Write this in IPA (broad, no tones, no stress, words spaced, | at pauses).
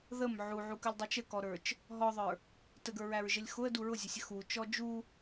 ðəm ʕuʕukəlʲdˤut͡ʃ əkɔɾə˞t͡ʃ | ɦɔðˤə˞ | təɡə˞ɹæɹʒəlʲ xʊə̯du ɹʊzʲʊsʲə xut͡ʃɔ d͡ʒu